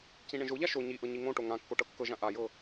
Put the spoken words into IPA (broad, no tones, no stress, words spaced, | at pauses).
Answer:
cĩɳẽʒoʎa ʃo ɲiʔɤ ɲiŋõʈo ŋãkːo ʈɤkːɤʒã ʔajɤ